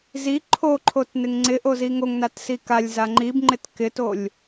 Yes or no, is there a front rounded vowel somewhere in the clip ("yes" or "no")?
no